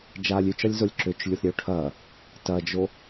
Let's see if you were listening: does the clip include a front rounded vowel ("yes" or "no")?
yes